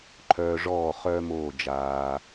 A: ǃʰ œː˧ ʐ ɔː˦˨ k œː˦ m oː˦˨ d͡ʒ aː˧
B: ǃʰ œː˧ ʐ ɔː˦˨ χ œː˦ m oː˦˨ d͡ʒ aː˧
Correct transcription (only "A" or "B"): B